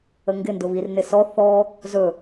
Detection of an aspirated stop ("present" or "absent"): absent